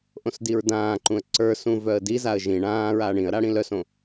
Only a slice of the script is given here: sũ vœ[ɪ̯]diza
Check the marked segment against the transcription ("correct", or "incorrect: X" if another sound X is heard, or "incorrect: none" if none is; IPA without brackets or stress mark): incorrect: ə̯